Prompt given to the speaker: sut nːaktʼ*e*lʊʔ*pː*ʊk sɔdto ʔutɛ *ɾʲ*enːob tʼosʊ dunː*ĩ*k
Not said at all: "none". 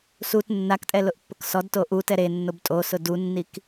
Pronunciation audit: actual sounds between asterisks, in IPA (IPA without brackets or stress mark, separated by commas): ɛ, pː, ɾ, i